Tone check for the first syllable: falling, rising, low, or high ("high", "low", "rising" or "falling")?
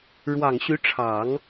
low